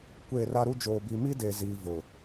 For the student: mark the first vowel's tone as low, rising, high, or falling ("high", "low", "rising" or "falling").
falling